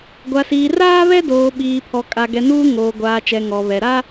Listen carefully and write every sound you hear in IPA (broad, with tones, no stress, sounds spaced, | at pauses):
ɡʷ a˨ s iː˨ r aː˦ β ɛ˦ d oː˨ ɓ iː˨ pʰ ɔ˨ kʼ a˨ ɡ ɛ˨ n uː˦ ŋ oː˨ ɡʷ aː˨ t͡ʃ ɛ˨ ŋ ɔ˨ β ɛ˨ ɾ a˦